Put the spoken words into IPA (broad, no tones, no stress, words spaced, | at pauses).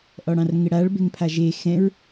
ʔɔɽɑ̃rŋɪɽaɭ beŋpʰaʒe xɛ̃ɹ